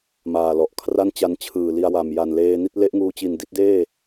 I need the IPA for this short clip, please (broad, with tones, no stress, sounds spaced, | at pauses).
m aː˨˩ l ɔ˨˩ ʔ kʰ r a˥˩ n t͡ɕ a˧ n t͡ɕʰ ɯː˨˩ l i˧ a̯ w a˨˩ m j a˨˩ n l eː˧ n i˥˩ t̚ l e˦˥ ʔ ŋ uː˧ t͡ɕ i˨˩ n d i˥˩ t̚ d eː˥˩